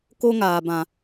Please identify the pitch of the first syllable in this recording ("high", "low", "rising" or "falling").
high